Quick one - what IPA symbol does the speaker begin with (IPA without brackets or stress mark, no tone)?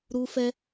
ɾ